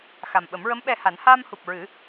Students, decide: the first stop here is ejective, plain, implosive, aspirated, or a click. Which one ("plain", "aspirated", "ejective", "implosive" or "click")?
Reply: implosive